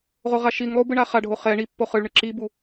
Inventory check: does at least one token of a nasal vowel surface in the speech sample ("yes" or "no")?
no